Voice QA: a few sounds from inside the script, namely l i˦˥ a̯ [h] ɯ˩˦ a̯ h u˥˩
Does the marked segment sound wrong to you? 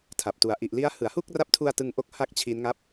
no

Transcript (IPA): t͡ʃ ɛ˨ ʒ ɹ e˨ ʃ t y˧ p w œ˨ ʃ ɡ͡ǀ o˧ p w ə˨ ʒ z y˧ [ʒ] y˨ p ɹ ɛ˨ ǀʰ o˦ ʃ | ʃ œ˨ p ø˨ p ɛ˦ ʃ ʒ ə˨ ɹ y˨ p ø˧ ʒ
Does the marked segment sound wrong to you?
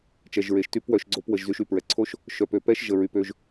yes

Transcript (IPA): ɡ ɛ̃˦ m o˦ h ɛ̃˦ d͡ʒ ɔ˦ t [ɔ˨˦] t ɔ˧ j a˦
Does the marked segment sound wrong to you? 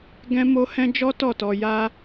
yes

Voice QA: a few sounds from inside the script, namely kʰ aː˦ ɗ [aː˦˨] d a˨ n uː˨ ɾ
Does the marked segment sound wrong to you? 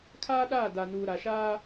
no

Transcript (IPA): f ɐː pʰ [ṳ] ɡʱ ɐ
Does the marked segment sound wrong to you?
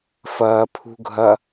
no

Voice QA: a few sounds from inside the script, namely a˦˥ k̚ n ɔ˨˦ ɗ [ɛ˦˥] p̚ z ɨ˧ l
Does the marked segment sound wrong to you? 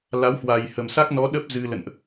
yes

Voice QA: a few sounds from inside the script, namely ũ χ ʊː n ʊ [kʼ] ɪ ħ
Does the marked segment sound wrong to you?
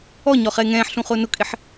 no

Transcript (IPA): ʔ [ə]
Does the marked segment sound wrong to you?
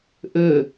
yes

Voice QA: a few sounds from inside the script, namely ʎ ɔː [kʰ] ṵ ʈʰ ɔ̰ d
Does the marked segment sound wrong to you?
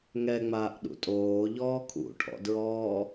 no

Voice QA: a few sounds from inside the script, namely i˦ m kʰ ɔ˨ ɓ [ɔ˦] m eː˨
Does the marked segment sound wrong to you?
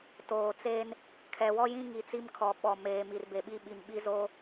yes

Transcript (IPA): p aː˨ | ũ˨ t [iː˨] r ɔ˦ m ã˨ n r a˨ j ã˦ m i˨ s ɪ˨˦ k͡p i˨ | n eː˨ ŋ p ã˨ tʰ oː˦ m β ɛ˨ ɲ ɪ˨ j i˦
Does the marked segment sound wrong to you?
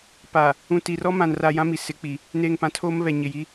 yes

